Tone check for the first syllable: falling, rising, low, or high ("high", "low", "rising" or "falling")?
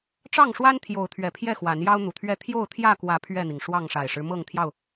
falling